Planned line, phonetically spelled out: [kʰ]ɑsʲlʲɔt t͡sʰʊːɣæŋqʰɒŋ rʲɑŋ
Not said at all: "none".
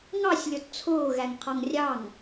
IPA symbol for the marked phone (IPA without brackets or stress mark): ŋ